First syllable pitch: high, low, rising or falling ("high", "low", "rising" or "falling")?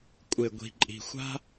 low